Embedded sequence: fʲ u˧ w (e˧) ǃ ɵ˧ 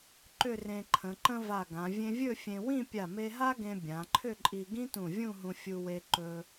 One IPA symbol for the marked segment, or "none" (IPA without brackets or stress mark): e˧